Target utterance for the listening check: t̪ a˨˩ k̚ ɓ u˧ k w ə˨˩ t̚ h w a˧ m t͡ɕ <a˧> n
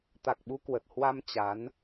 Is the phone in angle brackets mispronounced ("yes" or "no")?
yes